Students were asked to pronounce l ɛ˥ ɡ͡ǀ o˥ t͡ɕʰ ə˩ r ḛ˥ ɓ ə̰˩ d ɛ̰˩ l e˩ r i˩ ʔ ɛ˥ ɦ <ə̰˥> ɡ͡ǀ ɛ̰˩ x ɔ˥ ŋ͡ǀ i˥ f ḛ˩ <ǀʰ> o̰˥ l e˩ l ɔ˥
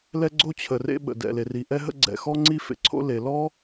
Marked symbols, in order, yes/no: yes, yes

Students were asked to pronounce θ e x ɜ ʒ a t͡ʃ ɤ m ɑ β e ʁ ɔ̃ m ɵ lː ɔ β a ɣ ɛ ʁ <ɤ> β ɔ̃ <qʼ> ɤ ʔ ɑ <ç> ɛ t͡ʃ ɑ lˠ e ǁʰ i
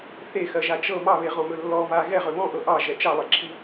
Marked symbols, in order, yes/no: no, no, no

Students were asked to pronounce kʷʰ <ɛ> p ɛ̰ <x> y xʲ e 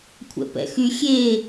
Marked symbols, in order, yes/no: no, yes

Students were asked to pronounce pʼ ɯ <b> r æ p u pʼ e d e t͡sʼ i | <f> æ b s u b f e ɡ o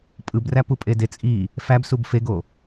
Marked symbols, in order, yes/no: yes, yes

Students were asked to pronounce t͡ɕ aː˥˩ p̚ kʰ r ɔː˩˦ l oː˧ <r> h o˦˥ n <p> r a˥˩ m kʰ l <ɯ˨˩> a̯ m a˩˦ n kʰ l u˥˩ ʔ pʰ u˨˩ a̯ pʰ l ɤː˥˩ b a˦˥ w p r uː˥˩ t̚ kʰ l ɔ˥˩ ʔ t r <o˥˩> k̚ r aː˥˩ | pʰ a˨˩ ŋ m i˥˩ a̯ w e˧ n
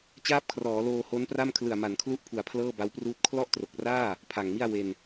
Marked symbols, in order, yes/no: no, yes, yes, no

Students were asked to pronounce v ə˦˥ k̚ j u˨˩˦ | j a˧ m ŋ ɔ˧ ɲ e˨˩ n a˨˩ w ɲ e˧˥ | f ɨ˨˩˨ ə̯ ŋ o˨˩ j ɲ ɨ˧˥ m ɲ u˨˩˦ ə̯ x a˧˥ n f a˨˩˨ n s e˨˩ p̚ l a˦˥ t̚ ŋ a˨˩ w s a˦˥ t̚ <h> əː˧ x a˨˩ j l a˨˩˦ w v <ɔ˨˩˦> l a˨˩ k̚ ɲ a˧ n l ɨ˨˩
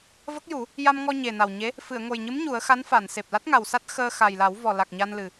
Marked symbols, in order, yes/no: no, no

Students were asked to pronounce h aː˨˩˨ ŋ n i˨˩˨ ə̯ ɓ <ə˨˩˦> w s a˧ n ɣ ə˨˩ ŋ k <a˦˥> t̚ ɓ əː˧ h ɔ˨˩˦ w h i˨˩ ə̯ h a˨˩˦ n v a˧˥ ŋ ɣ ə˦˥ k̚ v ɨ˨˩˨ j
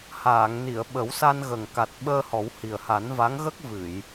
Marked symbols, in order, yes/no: yes, no

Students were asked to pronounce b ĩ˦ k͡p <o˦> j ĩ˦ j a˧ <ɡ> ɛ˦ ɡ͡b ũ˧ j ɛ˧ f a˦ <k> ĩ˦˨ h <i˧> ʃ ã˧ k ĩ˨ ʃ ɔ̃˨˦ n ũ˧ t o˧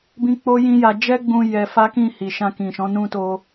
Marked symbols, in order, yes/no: yes, no, yes, no

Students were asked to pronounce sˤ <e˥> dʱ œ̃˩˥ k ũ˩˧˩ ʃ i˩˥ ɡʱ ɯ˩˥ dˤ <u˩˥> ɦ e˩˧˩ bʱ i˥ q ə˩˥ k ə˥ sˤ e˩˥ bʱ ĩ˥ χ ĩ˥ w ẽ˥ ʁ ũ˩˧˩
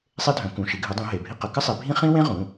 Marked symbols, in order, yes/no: yes, no

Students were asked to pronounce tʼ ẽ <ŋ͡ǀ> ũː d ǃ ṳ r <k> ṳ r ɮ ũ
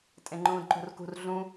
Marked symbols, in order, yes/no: no, yes

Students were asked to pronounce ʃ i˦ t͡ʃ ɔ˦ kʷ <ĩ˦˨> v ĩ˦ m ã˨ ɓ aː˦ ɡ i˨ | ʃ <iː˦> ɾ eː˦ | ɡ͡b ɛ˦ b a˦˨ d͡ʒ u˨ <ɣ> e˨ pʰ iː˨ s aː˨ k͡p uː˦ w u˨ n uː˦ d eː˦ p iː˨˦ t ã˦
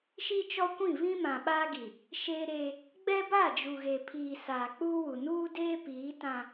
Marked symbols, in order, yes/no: yes, no, yes

